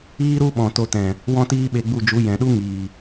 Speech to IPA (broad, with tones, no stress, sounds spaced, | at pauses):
iː˦ ɾ u˦ ɓ ɔ̃˨ t o˧ t ɛ̃˨ | w ɔ̃˦ t iː˦ ɓ e˧ ɡ͡b u˦˨ d͡ʒ u˨˦ j ɛ̃˨ ɗ u˦ ŋ iː˨